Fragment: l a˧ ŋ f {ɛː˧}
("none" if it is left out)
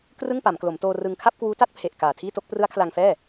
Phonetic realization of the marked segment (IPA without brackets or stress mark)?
ɛː˥˩